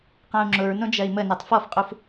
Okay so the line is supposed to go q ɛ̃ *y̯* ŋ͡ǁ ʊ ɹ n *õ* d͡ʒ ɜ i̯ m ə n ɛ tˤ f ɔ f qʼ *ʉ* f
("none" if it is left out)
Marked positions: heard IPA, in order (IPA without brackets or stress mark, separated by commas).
u̯, õ, u